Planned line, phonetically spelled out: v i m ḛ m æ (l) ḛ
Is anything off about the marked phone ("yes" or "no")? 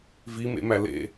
no